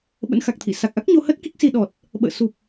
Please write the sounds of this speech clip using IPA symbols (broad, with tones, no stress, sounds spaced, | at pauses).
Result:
ɓ ə̰˧˥ n x a˨˩ k̚ t̪ʰ ḭ˧˨ s a˨˩ k̚ ʔ a˦˥ k̚ ɲ o˧ h ə˦˥ t̚ k i˦˥ k̚ s i˧ ɗ ɔ˨˩ t̚ | ɓ ə̰ː˧˨ s u˨˩ p̚